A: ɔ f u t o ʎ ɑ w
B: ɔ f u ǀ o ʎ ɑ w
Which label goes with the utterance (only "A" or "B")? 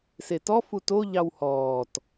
A